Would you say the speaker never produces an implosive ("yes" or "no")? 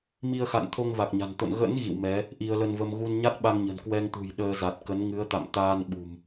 no